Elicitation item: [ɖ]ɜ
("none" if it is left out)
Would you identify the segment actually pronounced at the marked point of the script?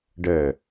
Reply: ɖ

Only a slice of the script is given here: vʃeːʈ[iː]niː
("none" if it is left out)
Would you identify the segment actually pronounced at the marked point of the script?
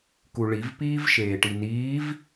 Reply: i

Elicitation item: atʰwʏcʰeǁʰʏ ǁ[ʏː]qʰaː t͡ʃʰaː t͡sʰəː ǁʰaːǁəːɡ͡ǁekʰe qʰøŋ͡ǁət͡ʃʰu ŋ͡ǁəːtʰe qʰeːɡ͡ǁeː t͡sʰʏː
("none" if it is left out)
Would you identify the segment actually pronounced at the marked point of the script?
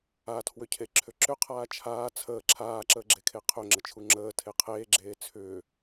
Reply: ʏ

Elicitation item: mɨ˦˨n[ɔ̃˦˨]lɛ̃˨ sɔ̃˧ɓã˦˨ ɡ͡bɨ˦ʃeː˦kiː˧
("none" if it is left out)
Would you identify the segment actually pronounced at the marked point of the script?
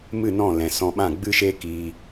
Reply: ɔ̃˦˨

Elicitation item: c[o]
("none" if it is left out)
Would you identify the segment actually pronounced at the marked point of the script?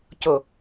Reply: o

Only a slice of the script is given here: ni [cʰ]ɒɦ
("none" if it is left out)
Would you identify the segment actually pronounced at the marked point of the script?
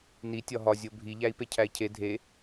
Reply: tʲ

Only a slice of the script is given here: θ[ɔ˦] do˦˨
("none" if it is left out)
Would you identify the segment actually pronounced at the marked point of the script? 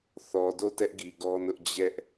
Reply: ɔ˨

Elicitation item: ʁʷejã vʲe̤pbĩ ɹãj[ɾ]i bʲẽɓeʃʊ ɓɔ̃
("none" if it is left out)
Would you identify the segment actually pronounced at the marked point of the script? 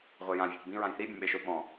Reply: θ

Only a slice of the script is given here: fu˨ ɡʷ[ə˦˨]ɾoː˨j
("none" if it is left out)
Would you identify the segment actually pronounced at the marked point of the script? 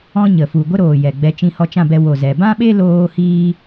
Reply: ə˦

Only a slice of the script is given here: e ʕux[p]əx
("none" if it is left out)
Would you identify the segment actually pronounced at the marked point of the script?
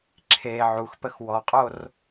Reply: p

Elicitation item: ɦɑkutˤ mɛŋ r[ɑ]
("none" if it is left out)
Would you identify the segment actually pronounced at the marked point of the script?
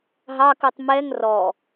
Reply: ɔ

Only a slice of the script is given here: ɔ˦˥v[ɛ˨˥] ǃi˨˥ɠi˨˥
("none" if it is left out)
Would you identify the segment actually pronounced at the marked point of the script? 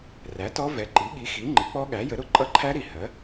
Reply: ɛ˨˥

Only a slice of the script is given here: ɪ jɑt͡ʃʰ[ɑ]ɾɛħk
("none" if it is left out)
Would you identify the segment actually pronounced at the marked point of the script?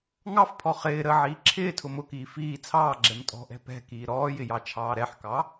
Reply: ɑː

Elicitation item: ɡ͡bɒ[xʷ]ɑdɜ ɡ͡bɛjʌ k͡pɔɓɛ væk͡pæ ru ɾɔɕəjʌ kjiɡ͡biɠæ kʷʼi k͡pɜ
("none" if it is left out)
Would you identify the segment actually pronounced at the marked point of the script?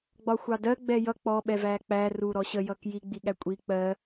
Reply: xʷ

